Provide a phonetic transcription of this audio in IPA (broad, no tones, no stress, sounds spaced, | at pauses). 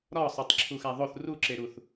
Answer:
ɾ ɒ sˤ o tˤ ǁʰ u x æ ðˤ o θ r u ǁ e ɾ u θ